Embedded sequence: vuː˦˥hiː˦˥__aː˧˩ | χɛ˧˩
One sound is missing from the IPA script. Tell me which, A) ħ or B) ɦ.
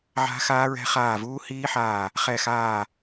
A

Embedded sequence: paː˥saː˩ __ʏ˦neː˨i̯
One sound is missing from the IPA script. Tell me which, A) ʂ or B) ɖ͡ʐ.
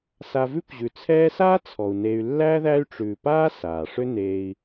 A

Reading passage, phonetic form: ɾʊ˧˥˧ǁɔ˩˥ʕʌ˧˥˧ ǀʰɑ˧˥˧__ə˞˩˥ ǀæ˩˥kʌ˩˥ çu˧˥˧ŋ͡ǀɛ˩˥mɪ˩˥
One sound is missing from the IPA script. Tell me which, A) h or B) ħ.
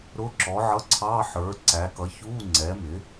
B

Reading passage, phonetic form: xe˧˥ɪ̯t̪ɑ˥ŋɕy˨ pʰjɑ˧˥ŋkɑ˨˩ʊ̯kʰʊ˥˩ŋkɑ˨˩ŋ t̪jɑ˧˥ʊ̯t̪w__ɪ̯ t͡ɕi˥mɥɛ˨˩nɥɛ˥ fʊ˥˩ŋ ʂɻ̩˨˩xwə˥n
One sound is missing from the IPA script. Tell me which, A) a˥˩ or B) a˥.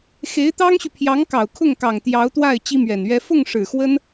A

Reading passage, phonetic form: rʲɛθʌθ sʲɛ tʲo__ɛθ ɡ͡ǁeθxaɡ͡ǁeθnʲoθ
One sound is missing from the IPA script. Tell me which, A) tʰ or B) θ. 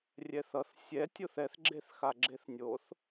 B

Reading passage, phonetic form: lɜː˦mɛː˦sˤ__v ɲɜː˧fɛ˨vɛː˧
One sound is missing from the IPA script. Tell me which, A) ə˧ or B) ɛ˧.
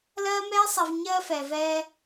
B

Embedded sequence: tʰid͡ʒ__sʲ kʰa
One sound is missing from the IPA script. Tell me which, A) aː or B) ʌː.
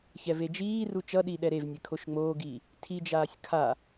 A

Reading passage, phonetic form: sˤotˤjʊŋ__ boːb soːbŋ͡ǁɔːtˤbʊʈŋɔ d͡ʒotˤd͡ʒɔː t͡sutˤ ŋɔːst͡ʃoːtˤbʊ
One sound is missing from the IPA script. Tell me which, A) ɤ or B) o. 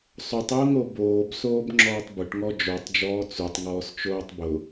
B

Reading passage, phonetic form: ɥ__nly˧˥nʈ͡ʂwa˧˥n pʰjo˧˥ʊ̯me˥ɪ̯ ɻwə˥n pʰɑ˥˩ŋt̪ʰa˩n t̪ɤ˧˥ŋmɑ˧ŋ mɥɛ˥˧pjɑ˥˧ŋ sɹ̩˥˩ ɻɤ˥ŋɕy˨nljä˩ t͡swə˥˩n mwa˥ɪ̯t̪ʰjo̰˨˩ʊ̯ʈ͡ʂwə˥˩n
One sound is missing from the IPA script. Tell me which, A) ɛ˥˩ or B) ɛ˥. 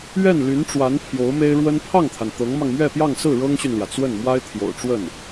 A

